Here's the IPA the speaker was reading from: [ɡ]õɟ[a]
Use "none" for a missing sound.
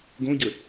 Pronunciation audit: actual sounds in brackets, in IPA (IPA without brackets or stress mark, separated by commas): ɡ, ə